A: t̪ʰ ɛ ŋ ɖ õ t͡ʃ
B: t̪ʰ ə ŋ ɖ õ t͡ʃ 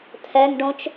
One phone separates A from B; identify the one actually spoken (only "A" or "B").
A